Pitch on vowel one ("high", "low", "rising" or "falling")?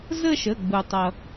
falling